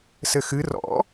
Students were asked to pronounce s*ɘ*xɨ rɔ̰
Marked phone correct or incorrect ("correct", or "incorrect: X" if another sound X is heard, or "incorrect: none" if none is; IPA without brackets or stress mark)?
correct